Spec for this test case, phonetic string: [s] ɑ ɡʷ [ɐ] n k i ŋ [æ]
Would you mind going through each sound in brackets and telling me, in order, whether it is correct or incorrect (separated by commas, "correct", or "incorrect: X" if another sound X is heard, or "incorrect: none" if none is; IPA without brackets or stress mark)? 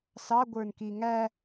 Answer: correct, incorrect: ə˞, correct